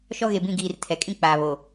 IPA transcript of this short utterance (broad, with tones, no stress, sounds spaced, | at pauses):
ʃ ɔ˦ ɣ e˨ b ĩ˦˨ ɡ iː˨ r tʰ ɛ˨ kʼ ĩ˦ k͡p aː˨ β o˨